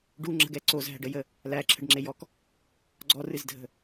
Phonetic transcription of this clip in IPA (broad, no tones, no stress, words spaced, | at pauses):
ɖuŋ͡ǁə̤ɡɛ ǀozɦæ̤ɖəjə | læǁʰə̤ɖŋ͡ǁejɔk | ɡ͡ǀɔrɨzdʱə̤